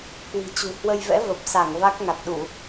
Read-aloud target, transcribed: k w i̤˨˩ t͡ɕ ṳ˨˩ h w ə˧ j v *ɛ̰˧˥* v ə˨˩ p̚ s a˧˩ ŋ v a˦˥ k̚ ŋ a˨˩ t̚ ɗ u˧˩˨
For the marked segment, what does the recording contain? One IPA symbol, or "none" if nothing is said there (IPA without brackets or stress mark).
ɛ̰˧˥